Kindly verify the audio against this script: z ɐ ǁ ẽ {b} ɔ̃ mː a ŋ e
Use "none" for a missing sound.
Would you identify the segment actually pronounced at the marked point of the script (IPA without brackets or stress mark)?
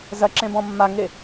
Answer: b